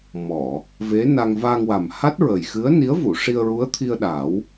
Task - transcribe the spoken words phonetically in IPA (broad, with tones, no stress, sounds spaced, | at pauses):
m ɔ˨˩˨ | v e˧˥ n a˧ ŋ v a˧ ŋ w a˨˩ m h a˦˥ t̚ ɹ ə˨˩ j x ɨ˧˥ ə̯ n i˧˥ ə̯ v u˨˩˨ ʂ i˧ ə̯ ɹ u˧˥ ə̯ t̪ʰ i˧ ə̯ ɗ a˨˩˦ w